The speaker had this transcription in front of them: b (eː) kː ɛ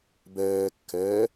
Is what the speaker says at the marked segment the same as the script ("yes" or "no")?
no